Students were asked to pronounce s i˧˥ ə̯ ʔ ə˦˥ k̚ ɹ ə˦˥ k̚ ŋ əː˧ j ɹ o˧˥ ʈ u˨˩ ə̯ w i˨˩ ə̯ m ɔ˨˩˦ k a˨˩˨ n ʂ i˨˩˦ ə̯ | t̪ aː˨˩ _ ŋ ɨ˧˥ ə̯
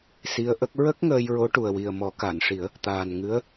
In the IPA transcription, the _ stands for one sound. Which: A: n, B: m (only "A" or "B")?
A